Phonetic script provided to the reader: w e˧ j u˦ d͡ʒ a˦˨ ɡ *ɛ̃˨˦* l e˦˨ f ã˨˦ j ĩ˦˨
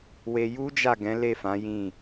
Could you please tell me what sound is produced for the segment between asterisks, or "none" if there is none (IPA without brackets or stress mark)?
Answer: ɛ̃˨˦